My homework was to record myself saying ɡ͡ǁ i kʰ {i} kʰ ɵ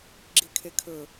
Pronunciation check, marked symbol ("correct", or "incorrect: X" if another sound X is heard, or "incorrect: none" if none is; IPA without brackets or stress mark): incorrect: e